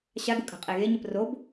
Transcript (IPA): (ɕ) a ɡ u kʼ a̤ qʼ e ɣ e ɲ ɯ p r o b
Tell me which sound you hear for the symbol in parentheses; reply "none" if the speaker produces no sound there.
ɕ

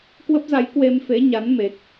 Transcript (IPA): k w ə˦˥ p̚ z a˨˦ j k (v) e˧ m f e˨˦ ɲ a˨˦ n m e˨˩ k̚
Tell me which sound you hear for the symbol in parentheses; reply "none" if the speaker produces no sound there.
w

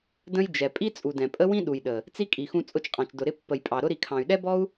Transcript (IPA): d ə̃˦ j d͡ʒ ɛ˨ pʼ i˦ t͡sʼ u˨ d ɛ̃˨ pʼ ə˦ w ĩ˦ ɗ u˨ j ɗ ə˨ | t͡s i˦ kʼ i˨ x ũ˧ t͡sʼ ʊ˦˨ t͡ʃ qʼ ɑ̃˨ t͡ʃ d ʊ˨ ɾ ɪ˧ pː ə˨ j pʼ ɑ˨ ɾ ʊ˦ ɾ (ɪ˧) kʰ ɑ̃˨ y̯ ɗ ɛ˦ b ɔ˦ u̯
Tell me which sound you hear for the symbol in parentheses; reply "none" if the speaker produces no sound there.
i˧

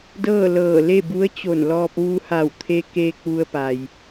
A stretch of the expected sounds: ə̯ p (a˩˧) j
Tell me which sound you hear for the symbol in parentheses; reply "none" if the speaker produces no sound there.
a˩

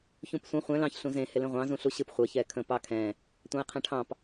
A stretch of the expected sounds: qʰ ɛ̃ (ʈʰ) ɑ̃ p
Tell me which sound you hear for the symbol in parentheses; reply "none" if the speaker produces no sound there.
ʈʰ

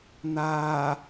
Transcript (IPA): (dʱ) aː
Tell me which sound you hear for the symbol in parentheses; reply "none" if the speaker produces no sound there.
n̪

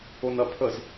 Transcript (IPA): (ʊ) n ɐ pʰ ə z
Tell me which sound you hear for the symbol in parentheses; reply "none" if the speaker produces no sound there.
ʊ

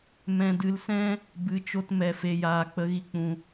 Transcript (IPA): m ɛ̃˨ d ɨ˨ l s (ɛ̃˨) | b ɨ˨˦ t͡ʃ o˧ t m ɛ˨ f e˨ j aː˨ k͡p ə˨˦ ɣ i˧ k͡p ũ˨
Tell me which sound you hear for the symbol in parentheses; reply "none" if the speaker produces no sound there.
ɛ̃˧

